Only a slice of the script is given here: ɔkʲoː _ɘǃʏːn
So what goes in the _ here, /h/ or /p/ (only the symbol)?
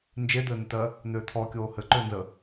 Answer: h